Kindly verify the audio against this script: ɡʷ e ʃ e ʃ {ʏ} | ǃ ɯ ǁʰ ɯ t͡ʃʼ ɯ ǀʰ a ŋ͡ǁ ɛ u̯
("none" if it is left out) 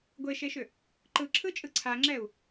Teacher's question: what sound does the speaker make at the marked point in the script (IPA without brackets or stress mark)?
ʏ